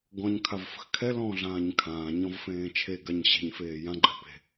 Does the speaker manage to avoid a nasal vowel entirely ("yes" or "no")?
no